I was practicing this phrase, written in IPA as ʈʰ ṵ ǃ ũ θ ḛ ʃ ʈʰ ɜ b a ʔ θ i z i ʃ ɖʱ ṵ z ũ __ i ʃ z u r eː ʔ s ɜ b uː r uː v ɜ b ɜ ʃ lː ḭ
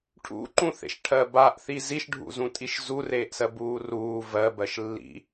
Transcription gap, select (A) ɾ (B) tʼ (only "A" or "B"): B